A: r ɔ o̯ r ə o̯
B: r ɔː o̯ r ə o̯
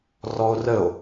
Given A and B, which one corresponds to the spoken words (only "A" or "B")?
A